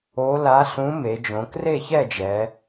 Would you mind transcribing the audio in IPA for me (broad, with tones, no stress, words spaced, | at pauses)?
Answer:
o˧˥ la˧˥ ɬũ˧˥me˩˧ d͡ʒõ˩˧kre˥˨çɛ˥˨d͡ʒɛ˩˧